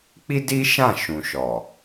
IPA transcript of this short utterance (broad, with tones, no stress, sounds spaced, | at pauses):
k͡p i˦ d i˦ ʃ ã˦˨ ʃ ũ˨ ʃ ɔ˨